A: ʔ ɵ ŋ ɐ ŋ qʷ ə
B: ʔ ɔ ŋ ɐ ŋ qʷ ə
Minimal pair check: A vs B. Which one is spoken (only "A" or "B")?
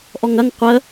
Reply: B